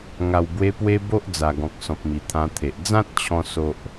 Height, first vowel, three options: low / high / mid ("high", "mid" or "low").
low